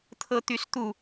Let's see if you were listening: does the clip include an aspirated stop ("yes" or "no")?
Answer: yes